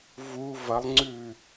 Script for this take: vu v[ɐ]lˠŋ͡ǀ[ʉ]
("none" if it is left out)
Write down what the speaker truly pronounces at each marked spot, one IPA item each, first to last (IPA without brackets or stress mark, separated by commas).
ɐ, ʉ